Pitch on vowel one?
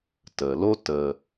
low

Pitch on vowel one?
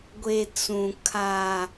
low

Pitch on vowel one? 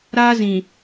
high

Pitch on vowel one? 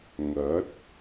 rising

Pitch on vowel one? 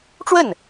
falling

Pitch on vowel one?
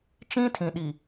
high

